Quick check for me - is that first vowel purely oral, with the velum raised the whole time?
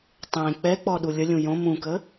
no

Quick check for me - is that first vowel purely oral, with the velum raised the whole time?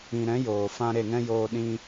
no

